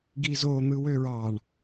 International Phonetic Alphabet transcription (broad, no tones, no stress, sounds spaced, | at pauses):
ɡ i z o n̪ ɯ w ø ɹ ɑ ɳ